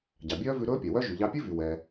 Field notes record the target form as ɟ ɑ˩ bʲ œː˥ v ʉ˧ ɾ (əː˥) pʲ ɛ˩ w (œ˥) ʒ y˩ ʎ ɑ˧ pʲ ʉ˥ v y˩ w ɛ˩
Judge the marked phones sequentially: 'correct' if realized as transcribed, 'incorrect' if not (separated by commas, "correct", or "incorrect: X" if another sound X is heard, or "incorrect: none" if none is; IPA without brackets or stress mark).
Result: incorrect: ɵː˥, correct